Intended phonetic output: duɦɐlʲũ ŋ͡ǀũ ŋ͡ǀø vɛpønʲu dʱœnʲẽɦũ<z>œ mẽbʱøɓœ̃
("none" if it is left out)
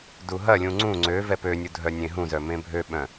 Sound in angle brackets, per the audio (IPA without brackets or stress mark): z